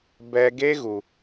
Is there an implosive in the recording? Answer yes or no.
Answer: no